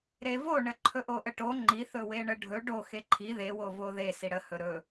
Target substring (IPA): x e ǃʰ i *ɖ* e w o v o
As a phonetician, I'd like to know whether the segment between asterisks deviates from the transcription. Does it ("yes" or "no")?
yes